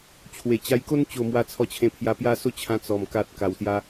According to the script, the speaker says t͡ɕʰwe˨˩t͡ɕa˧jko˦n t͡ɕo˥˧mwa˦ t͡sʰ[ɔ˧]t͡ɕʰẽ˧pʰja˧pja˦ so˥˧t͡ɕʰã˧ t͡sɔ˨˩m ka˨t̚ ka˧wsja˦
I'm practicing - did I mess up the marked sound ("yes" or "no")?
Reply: no